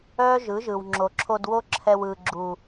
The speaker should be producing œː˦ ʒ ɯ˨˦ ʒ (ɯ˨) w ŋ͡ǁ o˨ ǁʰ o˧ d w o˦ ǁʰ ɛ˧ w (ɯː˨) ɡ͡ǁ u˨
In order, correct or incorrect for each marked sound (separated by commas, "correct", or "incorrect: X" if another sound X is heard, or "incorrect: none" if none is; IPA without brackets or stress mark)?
correct, correct